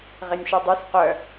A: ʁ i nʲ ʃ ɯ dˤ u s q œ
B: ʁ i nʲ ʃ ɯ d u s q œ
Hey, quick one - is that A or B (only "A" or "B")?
A